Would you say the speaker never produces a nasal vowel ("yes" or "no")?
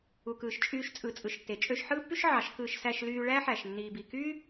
yes